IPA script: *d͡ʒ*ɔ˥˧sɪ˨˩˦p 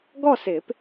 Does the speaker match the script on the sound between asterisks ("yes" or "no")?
no